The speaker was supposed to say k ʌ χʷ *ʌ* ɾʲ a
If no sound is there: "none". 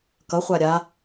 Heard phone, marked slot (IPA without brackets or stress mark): a